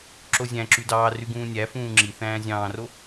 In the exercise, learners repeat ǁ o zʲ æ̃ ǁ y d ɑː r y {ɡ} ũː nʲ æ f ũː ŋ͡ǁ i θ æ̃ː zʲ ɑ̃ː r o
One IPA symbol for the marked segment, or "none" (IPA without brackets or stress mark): ɡ